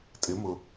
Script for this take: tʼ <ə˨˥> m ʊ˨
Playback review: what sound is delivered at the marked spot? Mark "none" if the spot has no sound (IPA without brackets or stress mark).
ɪ˨˥